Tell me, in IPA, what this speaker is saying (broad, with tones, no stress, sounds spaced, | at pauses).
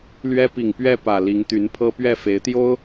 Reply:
l ɥ ɛ˥ p i˨˩ ŋ p ɥ ɛ˥˩ p ä˨˩ l i˧˥ ŋ t̪ y˧˥ n pʰ ɤ˥ p ɥ ɛ˥˩ f e˧˥ ɪ̯ t̪ j o˥ ʊ̯